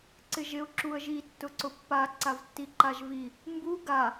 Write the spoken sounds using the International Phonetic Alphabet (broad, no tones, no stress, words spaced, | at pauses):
ǀɪʒɪʊ̯ ǁuə̯ʒi tːʊǀʊpːa ǀavtːiǃaʒvi | mbu ɡa